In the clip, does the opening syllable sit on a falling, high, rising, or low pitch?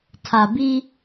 low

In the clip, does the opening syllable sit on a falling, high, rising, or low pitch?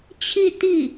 falling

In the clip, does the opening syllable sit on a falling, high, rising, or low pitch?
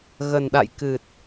low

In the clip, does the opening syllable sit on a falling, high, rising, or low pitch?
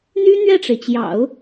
high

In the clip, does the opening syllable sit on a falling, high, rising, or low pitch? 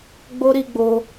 high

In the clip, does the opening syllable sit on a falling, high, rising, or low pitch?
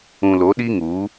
low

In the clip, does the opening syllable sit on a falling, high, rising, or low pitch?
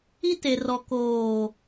high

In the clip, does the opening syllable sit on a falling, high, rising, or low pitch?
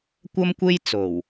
high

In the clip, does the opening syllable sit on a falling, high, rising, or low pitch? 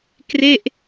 falling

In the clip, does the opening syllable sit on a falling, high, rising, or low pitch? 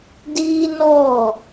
high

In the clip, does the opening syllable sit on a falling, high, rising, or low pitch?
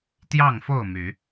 falling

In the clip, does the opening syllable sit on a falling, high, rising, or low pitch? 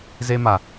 high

